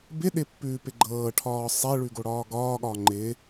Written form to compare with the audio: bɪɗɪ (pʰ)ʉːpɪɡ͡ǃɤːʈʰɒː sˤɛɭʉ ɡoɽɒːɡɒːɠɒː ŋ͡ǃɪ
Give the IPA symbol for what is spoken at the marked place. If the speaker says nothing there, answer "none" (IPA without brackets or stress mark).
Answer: pː